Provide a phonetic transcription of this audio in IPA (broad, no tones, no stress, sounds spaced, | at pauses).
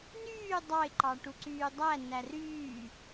n yː dˤ ɑ ɪ̯ ǃ ɑ ʈ u ǀ yː dˤ æ n æ r yː